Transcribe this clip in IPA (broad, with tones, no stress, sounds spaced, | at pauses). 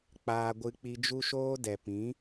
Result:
k͡p aː˧ ɡʷ ɨ˧ k͡p i˧ d͡ʒ u˧ ʃ oː˧ d ɛ˨ p ĩ˨˦